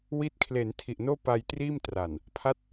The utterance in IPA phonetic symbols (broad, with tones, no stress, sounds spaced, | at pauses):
w i˦˥ t̚ kʰ l e˩˦ n tʰ i˨˩ ʔ n oː˥˩ p a˧ j t r iː˥˩ m t r a˨˩ n | pʰ a˦˥ t̚